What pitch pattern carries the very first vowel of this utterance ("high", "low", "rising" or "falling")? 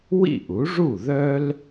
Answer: falling